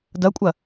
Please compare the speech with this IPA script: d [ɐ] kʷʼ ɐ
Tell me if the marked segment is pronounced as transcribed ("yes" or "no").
yes